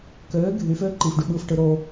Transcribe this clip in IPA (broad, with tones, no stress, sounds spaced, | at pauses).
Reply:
k øː˨˦ ɡʱ y˨˦ f øː˦ ǃ iː˨ f ɖ y˨ ɓ ɯː˦ f ʈ ɯ˨˦ ɾ oː˦